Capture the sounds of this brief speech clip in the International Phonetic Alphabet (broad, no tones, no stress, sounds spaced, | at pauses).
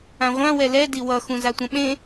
ã ʁʷ ã w ɛ l ɛ d i w ʌ x ũ z a tʷ ã ɓ ẽ